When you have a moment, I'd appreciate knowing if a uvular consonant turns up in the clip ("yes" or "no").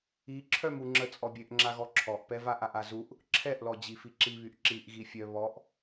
no